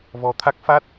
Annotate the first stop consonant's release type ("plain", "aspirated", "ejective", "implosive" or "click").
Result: aspirated